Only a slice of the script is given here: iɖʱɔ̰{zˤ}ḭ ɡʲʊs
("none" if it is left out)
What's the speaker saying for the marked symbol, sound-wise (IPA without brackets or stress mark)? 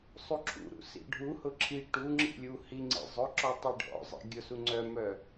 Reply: zˤ